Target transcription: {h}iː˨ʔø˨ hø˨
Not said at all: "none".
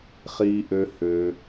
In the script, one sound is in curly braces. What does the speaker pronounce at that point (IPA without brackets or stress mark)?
χ